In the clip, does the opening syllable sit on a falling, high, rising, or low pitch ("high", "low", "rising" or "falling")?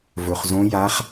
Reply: low